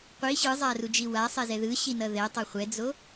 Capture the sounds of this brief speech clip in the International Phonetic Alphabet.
qʷ i ɕ ɯ zˤ a r u d͡ʒ i w a sˤ ɛ z ɛ ð ɯ ɕ i n ʌ ð ɛ tˤ ʌ χʷ ɛ d͡z o

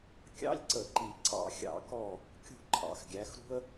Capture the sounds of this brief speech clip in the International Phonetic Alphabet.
kʲ ɑ̰˧˥˧ lʲ ǀ ə˧˩˧ ǃ i˨˩ ǀ ɑ̰˧˩˧ xʲ ɑ̰˧˩˧ k ɔ˦˨ | kʲ ṳ˦˨ ǃʰ ɑ̰˨˩ x ɡʲ æ˨˦ x ɾ ṳ˥ ə̯

